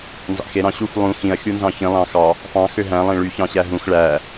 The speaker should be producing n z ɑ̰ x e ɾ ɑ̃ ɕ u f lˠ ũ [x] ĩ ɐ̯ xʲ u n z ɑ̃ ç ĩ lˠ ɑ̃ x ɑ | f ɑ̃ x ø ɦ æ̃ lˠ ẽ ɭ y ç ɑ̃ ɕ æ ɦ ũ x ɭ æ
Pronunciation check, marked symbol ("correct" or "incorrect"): correct